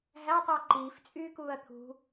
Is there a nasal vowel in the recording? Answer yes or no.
no